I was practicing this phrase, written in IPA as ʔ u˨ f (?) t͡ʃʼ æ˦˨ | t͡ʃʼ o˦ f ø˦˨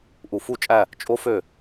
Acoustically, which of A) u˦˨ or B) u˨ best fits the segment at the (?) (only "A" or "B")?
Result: A